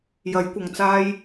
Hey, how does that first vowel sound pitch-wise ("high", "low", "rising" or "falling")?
rising